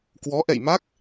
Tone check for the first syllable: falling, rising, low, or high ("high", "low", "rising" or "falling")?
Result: rising